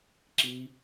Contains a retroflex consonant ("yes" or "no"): no